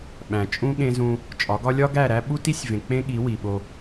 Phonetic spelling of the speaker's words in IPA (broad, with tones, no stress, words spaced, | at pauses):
ɓæ̃˨t͡ʃʼũ˦ ɠẽ˦zũ˦ | t͡ʃʼɒ˨˦ɡɒ˦ lʲɒ˦ɡæ˦˨ɾæ˦ ɓu˦ti˦sʲvẽ˨ k͡pẽ˦ɠi˨˦ wi˨ɓo˦